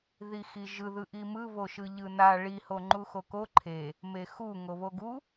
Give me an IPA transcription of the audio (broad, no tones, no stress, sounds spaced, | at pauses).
ð i x i ʒ ɯ ð ɯ ʔ i m ɯ β o ʃ ɯ ʎ ɯ n a ɭ i h o ŋ͡ǃ u x o k o ǃʰ e | m e x u ŋ o β o ɡ u